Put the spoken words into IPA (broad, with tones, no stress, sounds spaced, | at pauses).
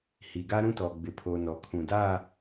h i˨ ɡ a˦ ɾ ũ˦ t ɔ˨ ɡ͡b ɪ˨ pʰ o˨ n ɔ˨ kʰ ũ˨ d a˦˨